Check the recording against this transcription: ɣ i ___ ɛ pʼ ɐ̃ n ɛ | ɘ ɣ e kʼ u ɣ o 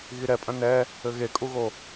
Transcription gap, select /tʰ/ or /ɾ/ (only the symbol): ɾ